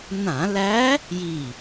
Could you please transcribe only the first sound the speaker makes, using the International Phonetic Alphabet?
n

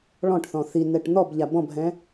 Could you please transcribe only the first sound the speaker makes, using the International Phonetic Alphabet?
ɭ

